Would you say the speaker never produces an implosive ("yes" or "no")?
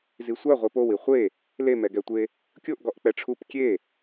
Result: yes